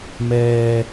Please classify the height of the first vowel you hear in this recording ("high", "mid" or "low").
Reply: mid